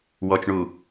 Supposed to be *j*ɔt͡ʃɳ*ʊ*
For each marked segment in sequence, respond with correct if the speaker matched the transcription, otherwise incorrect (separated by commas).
incorrect, incorrect